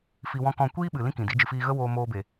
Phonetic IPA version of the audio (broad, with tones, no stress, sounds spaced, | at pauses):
f i˧ w ɔ̃˦ k ɔ̃˦˨ kʷ iː˦ ɓ ɨ˨ l ĩ˦ k ĩ˨ d i˨˦ d͡ʒ ɨ˨ f iː˧ ɣ ə˦ w oː˧ m oː˧ b e˨